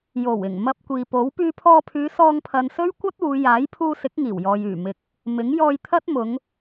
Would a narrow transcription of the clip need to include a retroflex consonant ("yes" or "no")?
no